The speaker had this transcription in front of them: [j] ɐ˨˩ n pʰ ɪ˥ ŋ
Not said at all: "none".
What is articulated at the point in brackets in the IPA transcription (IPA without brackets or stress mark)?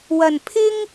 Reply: w